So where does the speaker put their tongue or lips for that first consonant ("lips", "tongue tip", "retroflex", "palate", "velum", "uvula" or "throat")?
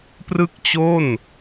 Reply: lips